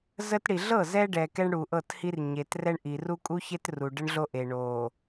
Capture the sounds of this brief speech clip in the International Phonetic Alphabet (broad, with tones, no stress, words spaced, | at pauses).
zə˦tɽi˨ ɮɤ˦˨zɛ˦ɖɛ˨ kɛ˦ɳɽu˨ʔɤ˦˨thi˦r ɲe˨t rɛ˦ɳʔi˨r u˦kʼu˦çe˦t ru˨ɖə˦ɳɮo˦ʔe˨ ɳo˨